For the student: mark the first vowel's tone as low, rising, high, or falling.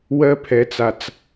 high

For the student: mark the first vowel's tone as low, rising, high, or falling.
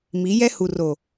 rising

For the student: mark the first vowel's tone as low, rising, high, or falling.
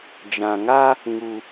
low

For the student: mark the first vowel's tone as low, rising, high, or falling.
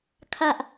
low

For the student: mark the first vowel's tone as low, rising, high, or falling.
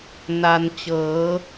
low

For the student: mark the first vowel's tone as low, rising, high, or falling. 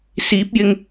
rising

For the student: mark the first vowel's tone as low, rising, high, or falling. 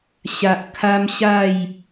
low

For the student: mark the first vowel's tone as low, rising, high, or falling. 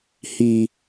low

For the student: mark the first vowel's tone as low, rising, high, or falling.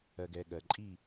low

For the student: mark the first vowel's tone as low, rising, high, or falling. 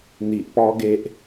low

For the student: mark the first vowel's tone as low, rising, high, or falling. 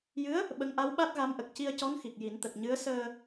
rising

